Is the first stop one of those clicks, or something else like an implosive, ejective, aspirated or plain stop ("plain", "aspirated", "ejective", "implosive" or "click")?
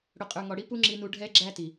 ejective